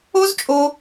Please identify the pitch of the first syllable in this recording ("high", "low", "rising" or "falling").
high